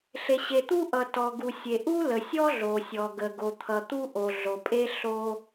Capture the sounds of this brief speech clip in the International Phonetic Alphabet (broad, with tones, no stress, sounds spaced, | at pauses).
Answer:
ɬ e˩ ɕ e˩ t̪ u˥ ʔ ʌ˩ t ɔ˩ ɡ u˩ sʲ e˩ ʔ u˥ l ə˩ sʲ ɔ˥ ɮ o˩ sʲ ɔ˩ ɡ ə˩ ɡ o˩ t̪ʰ ʌ˩ t̪ u˥ ʔ o˩ ɮ o˩ pʼ e˥ ɬ o˥